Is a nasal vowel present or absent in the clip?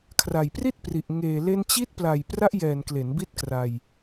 absent